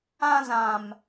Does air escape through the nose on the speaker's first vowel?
yes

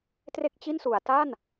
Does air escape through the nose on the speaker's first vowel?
no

